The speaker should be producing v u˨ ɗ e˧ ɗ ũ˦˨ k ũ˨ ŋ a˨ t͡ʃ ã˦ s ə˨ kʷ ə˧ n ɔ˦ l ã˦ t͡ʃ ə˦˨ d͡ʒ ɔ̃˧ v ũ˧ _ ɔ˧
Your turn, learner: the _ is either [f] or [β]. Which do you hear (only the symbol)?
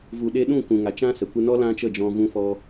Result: f